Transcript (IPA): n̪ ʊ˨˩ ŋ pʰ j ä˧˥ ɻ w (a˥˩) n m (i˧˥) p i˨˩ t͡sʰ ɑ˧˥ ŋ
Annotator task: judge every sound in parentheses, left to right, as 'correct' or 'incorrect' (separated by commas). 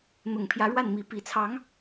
correct, correct